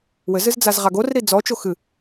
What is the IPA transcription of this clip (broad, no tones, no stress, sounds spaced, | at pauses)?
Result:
w ɘ z ɨ z d͡z a z ʁ a ɡ o r ɾ i d͡z ɔ t͡ʃ o x ɨ